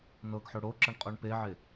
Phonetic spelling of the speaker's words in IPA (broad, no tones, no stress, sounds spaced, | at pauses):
n ɤ ɡ ħ o ɽ o ǁ ɤ ɳ qʼ o ɳ p e ʕ e